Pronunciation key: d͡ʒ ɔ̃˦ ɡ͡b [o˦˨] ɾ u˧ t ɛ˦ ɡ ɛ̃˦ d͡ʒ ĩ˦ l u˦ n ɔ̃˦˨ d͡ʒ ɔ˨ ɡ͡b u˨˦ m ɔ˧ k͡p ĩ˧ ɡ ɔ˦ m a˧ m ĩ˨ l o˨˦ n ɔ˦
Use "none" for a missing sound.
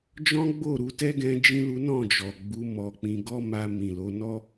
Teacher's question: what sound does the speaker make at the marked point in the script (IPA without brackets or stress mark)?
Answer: o˦˨